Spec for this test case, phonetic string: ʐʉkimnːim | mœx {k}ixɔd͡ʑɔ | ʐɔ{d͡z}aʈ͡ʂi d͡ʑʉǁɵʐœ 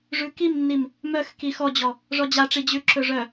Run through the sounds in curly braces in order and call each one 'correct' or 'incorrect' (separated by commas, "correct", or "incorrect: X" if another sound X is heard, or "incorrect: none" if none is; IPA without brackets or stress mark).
correct, incorrect: d͡ʑ